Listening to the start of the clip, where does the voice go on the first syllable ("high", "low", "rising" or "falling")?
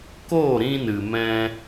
falling